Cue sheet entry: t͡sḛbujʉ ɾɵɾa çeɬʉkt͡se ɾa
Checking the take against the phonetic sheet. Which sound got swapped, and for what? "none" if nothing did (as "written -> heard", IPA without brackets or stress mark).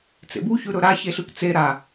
j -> ç